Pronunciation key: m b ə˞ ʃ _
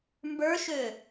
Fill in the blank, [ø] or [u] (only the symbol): ø